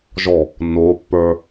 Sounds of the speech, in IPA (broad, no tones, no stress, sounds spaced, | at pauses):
ʒ ɔ | nː o pː ə˞